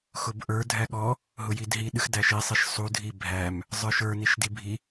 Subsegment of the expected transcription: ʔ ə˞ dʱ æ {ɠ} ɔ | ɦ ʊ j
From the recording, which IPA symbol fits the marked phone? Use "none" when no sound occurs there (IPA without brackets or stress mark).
ɠ